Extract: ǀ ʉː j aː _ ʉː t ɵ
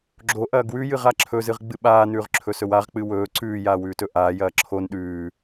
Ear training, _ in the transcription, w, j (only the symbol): w